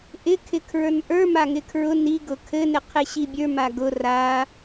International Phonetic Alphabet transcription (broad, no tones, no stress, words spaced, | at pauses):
ʔɪ kʰɪkʰɹə˞nʔə˞ maŋɪkʰɹʊ ni ɡʊkʰɘ nɪqʰeɕibʲə˞ maɡʊ ra